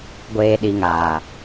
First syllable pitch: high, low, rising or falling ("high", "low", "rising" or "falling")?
low